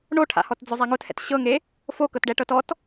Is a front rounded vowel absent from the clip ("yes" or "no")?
yes